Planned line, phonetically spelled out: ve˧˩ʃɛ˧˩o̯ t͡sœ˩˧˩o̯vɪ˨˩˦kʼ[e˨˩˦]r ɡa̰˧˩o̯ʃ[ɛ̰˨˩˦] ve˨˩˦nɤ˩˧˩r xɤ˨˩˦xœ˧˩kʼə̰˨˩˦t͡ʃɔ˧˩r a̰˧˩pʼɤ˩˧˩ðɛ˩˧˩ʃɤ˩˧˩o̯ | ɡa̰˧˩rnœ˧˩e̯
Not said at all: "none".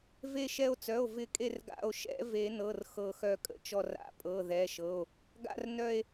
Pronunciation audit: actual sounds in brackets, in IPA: e˧˩, ɛ̰˨˩˦

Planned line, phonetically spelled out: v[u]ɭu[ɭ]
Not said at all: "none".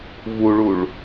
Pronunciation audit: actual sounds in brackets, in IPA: u, ɭ

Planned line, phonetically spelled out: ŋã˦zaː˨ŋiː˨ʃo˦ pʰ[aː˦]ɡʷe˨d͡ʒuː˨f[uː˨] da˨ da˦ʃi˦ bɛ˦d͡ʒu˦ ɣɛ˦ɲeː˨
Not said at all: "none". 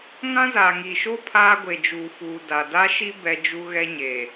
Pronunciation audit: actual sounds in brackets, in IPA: aː˦, uː˨

